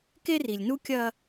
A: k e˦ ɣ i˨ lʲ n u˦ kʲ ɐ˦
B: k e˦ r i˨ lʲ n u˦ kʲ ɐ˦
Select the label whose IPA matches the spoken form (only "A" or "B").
B